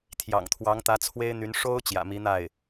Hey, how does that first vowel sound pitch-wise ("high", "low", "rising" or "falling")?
low